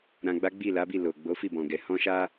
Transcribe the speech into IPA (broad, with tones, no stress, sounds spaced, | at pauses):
ɾ ã˧ ɡ͡b a˦ ɡ͡b i˦˨ l a˨˦ b i˦˨ l o˨ ɡ͡b o˨˦ f i˦˨ b ɔ̃˨ ɡ ɛ˨ h ɔ̃˧ ʃ a˧